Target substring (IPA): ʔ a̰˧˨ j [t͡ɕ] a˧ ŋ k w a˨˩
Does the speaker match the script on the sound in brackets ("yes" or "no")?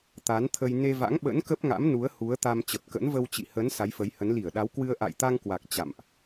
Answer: no